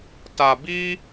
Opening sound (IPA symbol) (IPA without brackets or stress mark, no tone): t